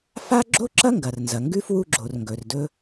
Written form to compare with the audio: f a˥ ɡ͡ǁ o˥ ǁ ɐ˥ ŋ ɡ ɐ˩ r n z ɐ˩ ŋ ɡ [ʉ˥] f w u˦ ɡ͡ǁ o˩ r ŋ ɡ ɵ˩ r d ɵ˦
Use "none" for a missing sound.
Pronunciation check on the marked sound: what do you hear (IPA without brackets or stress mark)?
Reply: ʉ˥